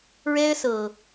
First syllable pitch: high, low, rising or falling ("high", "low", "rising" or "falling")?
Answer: high